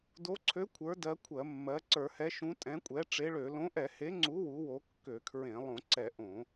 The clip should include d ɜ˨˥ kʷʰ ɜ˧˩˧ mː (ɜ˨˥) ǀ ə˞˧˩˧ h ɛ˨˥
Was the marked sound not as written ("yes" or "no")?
no